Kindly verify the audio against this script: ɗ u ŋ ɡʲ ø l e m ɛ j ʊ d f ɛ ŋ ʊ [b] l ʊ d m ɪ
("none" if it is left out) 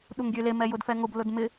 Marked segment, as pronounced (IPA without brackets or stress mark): b